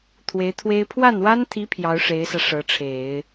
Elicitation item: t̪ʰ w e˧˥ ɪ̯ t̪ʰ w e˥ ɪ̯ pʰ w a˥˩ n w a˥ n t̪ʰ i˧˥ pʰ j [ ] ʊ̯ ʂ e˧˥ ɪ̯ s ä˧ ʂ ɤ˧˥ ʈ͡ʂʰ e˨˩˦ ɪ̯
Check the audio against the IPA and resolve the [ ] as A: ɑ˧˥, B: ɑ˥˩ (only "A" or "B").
A